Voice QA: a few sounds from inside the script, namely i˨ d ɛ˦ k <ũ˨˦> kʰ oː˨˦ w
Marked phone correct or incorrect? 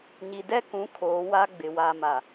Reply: correct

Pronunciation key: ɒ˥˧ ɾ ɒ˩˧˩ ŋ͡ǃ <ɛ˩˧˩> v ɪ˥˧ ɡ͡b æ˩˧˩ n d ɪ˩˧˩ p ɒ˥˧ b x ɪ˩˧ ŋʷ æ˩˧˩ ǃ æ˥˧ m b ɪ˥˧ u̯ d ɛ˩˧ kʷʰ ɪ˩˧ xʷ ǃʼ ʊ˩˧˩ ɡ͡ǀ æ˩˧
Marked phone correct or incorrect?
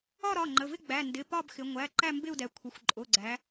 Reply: incorrect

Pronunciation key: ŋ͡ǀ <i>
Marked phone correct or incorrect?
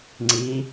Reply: correct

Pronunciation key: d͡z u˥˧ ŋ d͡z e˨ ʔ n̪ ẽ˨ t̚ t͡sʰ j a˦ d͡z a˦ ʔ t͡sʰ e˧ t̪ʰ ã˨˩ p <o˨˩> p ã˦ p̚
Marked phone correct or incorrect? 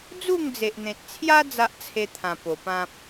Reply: correct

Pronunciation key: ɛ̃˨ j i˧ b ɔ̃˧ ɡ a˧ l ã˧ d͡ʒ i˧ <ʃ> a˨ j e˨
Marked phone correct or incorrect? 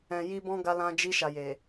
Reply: correct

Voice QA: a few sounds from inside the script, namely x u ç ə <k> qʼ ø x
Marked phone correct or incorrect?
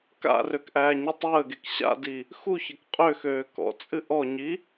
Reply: correct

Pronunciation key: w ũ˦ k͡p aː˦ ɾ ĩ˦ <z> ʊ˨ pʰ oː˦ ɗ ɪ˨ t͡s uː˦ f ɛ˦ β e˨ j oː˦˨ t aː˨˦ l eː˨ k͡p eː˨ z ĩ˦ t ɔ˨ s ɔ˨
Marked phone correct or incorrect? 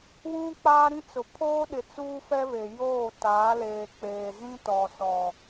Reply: incorrect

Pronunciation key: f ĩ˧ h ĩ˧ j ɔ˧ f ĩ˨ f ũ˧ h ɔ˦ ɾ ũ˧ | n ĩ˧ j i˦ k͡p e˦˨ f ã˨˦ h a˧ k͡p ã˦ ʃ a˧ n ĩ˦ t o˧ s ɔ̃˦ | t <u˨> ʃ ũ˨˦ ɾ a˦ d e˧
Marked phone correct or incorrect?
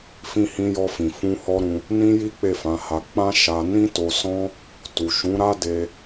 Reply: correct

